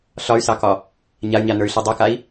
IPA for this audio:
ɬ ɒ y̯ s ɑ k ɒ | ɲ a y̯ ɲ a n ə˞ y̯ ɬ i dˤ ɜ k a i̯

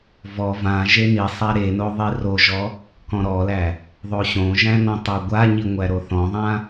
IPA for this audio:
v ɔ v ã ʒ e n i sˤ a ɾ e n o ðˤ i r o ʒ ɔ | k ɔ̃ ɾ ɔ l æ | ðˤ o ɕ õ ʒ æ̃ n ɔ̃ tˤ o ɡʷ a ɲ i ŋʷ æ ɾ o θ ɔ̃ ðˤ ã

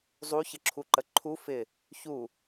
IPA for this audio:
zˤ u ç ə ǁʰ u ǃ ə ǃʰ u f ɪ | ç u

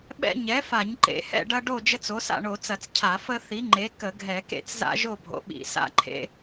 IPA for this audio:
ɓ ɛ̰˦ ɲ ɛ˩˥ f a˧˩˧ ɲ ǃ ḛ˧˩˧ h ɛ̰˥˨ ɖ ɐ˦ ɖ o˥˨ d͡ʒ ə˦ t͡s o˩˥ s a̰˥˨ ɳ o˧˩˧ t͡s ɐ˧˩˧ t͡s cʰ a˧˩˧ f ə˦ θ i˩˥ ŋ͡ǃ e˩˥ k ə˧˩˧ ɡʱ ɛ˧˩˧ k ḛ˥˨ t͡s z a̰˦ ʒ o˥˨ bʱ o̰˩˥ ɓ ḭ˧˩˧ s a̰˥˨ ǃʰ ḛ˦

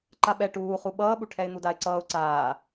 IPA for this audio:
ǃ a ɓ ɛ ʈ uː χ u ɓ ʌː ɓ u ʈʰ ɛ ɪ̯ n̪ u d a ɪ̯ ǀ ʌː ʊ̯ ǀ aː

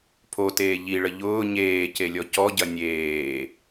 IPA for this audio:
pʰ o t eː ʎ i ɭ ə ʎ ʊː ɲ eː c e lʲ ɔ c ɔ ɟ ɐ nʲ eː

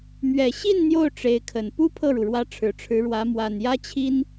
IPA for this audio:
m ɥ ɛ˨˩ ɕ i˥˧ n n̪ j o˥˩ ʊ̯ ʈ͡ʂ e˧˥ ɪ̯ kʰ ə˨˩ n p u˥ pʰ ɤ˥˩ ɻ u˩ ɻ w ä˧˥ ʈ͡ʂʰ ɻ̩˨˩ ʈ͡ʂʰ ɻ̩˧˥ ɻ w ä˧˥ m w a˨˩ n j ä˥ t͡ɕʰ i˥ n

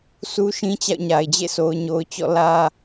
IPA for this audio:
s u˦ ʃ ĩ˦ t͡ɕ a̰˦˨ ʊ̯ ɲ a˨ ɪ̯ d͡ʑ ḛ˦˨ s o˨ ʊ̯ ɲ o˨ ʊ̯ t͡ɕ ɔ̰˦˨ l ä˦

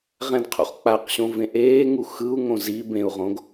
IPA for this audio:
ʁ ɛ̃ d qʰ ṵ χ k͡p a q ɕ õ v ẽ ʔ eː ŋ u x ɯ u̯ ŋ õ z i b ẽ u̯ ʁ õ ɡ

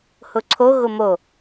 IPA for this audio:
h ʊ ǀʰ o ɣ ʊ m o

